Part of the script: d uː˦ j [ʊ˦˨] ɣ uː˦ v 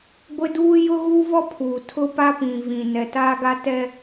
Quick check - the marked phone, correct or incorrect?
incorrect